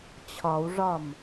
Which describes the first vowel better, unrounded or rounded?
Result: rounded